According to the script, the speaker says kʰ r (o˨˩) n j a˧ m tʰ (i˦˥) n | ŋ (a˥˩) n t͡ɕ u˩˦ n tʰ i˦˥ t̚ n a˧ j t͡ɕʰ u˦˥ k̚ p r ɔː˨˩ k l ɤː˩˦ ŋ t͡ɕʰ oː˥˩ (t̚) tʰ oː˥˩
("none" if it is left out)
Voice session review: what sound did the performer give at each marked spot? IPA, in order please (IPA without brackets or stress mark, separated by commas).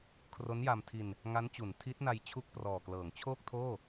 o˦˥, i˧, a˦˥, k̚